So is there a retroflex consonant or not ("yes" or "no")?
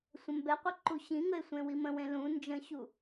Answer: no